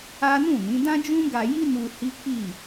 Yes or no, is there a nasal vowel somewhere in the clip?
yes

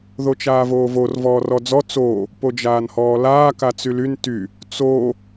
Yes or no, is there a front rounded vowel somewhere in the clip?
yes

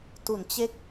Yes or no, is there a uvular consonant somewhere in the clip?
no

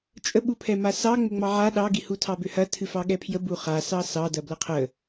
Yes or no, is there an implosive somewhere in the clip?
yes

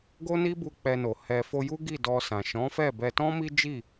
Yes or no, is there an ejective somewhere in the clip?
no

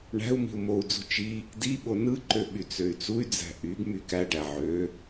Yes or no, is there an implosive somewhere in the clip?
yes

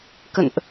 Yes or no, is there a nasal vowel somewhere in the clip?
no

